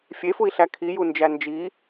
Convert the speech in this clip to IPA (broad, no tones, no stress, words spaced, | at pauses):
fʲefui̯ɬæ kʰijund͡ʒæ nd͡ʒi